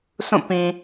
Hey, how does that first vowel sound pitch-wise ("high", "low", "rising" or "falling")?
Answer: falling